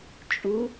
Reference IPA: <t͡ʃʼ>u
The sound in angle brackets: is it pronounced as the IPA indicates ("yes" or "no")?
yes